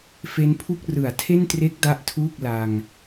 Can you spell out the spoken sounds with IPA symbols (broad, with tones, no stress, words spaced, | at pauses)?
fe˦˥npʰu˥˩k̚ rɯ˩˦a̯tʰe˥˩ntre˦˥k̚ da˥˩ʔtʰuː˥˩k̚ la˧ŋ